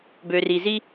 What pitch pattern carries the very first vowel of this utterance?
low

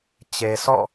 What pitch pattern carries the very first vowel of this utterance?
low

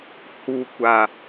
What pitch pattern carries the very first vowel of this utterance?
low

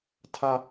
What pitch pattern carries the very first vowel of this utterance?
high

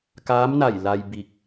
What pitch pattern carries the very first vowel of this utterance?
rising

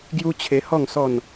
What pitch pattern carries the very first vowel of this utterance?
high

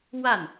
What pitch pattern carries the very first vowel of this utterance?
falling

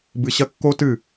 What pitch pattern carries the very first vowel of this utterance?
low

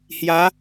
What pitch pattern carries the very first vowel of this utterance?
rising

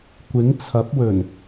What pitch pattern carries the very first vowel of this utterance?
rising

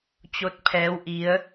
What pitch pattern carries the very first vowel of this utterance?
rising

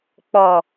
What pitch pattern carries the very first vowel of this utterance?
low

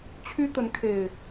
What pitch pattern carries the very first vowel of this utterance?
high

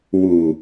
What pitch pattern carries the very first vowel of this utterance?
low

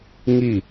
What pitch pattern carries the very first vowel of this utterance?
falling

